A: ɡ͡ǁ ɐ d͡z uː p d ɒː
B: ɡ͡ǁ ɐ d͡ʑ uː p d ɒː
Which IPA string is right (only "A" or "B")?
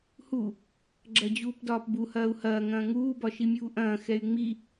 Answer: B